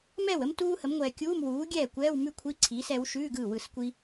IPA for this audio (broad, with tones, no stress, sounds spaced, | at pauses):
m ɛ˥˩ w ə˥ m t uː˥ h ə˩˥ m ŋʷ ɛː˨ kʲ uː˧˥˧ m w uː˩˥ ɡʲ ɛː˥˩ kʷ ɛː˧˥˧ w m ʉ˥ kʷʰ i˧˥˧ ǀʰ iː˩˥ s ɛ˩˥ w ʃ ʉː˧˥˧ ɡ ɯ˥˩ w ɯ˥˩ s kʷ i˥